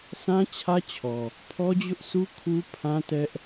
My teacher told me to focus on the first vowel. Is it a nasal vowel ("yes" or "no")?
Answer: yes